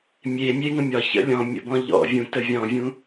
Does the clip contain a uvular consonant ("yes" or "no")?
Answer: no